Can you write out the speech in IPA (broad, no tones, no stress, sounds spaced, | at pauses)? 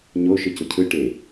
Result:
ɲ o ʃ ɯ c ʊ cʰ ɯ ʈ e